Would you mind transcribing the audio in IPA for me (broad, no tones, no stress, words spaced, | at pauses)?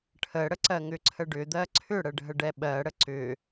ʈʰəɽəǀɜ ŋʏǀʰəɖʏd̪ɜ ǀʰʏɽəɖʱə ɖɛɓɜɽə ǀʏ